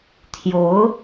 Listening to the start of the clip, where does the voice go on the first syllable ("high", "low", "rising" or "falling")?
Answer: rising